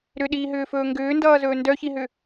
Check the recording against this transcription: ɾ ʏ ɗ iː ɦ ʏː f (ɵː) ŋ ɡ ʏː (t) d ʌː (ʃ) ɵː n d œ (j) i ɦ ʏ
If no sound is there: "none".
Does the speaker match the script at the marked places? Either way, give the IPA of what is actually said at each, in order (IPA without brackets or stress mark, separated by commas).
ɵː, n, z, ç